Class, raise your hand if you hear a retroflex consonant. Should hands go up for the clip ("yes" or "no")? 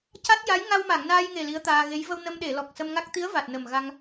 no